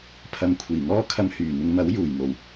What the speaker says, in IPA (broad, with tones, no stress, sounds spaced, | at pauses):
pʰ ɐ˨˧ m kʷʰ iː˨˩ ŋ ɔː˥ kʰ ɐ˧ m h yː˨˩ n̪ ɪ˨˧ ŋ m ɐ˨˥ w j uː˨˩ j n̪ o˨˩ w